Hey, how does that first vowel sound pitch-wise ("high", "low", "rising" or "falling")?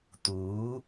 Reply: rising